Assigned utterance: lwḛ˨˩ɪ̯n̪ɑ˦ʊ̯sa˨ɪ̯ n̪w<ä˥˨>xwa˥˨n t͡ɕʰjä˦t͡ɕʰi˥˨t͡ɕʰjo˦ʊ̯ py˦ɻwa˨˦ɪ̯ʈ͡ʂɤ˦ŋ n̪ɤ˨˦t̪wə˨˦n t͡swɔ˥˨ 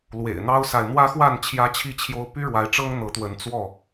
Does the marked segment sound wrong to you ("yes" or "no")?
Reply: yes